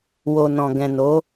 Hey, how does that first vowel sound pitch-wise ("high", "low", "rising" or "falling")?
low